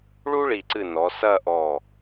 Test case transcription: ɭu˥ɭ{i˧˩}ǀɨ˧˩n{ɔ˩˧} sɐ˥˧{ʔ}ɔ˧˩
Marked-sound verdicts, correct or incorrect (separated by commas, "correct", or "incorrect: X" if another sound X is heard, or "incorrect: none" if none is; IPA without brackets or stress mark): correct, correct, correct